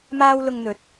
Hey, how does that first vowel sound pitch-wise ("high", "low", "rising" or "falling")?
high